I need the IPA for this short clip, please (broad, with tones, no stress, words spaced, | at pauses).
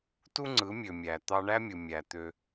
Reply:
tu˦ŋ͡ǀɯ˨˦mʲø˨ mʲæ˨ t̪ɑ˧ɳæ˦mʲɯ˨ mʲæ˨ t̪ø˦